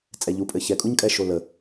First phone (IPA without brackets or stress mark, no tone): t͡sʼ